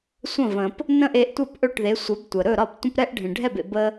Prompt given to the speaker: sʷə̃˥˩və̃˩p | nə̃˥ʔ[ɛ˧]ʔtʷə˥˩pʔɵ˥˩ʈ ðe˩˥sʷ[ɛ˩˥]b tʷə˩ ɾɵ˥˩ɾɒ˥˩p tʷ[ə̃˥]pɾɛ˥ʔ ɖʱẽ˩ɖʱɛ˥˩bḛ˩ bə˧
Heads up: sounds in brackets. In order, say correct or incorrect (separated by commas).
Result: incorrect, correct, correct